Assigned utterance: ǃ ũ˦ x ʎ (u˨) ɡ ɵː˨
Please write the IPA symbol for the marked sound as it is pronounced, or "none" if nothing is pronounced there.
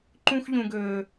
ũ˨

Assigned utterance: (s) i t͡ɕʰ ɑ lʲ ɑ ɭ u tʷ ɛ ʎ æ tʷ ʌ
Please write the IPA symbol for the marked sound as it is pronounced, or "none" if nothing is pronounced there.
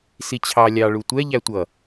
s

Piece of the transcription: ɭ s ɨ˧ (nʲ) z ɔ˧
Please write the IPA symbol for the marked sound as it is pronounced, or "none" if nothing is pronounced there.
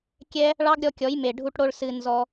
n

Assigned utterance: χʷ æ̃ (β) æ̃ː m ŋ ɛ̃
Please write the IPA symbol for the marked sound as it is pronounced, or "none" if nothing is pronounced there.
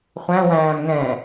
w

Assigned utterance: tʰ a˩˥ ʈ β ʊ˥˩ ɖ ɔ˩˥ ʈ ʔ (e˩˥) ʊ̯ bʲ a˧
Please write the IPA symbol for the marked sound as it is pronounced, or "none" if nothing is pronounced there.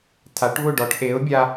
e˩˥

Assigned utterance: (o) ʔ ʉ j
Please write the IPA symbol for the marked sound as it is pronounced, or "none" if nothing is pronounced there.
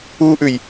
u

